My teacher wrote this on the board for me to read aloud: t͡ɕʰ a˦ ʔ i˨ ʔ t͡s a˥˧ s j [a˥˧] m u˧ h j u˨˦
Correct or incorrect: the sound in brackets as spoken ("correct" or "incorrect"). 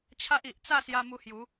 incorrect